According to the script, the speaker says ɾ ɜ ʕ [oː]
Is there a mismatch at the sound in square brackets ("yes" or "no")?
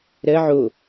yes